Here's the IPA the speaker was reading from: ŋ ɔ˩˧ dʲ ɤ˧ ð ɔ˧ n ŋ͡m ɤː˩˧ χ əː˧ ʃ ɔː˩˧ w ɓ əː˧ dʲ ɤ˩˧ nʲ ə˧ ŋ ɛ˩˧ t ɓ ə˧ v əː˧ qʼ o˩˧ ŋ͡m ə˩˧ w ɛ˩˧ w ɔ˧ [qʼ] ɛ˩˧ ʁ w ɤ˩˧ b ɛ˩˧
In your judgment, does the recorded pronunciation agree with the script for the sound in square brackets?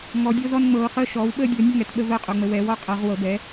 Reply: yes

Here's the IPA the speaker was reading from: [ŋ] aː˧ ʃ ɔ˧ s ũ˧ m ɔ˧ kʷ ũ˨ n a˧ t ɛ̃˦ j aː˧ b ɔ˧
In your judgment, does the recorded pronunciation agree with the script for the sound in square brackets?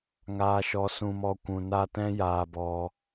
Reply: yes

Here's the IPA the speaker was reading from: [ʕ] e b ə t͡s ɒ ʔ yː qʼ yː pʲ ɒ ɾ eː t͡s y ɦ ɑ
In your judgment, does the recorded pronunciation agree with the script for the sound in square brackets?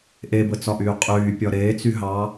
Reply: no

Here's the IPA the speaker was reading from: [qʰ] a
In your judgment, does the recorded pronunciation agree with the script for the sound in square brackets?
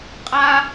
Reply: no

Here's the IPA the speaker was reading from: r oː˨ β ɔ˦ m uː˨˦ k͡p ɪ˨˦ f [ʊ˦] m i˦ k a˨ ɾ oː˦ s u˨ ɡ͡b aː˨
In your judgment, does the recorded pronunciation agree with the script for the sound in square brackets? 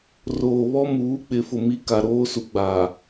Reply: no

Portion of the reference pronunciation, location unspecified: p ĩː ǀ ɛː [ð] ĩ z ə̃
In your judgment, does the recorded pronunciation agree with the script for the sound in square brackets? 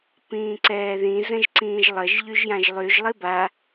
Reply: yes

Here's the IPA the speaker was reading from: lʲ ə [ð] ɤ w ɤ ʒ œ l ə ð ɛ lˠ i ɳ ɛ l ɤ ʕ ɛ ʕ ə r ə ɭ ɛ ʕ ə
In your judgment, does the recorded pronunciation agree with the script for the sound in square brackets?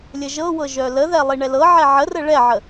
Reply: no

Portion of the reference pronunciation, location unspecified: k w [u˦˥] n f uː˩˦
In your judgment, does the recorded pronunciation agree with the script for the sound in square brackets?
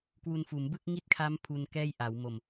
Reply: no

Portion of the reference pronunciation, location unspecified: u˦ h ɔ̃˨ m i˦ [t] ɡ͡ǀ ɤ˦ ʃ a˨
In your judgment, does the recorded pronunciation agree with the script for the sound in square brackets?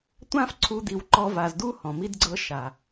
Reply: no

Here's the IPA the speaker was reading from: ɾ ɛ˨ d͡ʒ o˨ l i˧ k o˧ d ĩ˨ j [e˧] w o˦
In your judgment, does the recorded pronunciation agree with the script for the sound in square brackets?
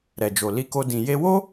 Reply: yes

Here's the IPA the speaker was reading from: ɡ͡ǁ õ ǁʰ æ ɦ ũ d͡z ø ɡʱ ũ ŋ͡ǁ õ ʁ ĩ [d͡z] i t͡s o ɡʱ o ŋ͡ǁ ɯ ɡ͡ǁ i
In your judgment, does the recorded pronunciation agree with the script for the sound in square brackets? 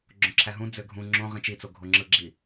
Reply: no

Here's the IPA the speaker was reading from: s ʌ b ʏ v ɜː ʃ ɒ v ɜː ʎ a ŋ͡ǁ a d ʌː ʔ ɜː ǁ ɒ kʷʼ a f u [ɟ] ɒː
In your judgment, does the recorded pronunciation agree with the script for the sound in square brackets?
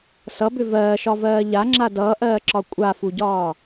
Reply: yes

